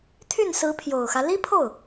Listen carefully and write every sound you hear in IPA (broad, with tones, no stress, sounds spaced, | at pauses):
t̪ʰ y˥˩ n s ɹ̩˧˥ pʰ j o˨˩ ʊ̯ x ä˦ l i˥ pʰ o˥˩ ʊ̯